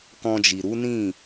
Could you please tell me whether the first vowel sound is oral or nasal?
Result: nasal